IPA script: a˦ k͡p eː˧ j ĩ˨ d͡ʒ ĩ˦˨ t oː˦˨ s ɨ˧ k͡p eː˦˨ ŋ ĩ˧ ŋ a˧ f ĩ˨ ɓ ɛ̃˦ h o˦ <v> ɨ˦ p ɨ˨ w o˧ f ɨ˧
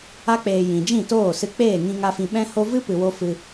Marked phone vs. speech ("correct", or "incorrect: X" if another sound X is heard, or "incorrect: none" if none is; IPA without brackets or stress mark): correct